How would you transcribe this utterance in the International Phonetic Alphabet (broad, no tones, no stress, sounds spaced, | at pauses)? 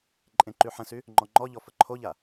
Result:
ǃʼ ẽ ǃ y ħ ə̃ s y | ŋ͡ǃ ɔ ŋ͡ǃ ɔ ʎ ɔ f ə ǃʰ o ʎ a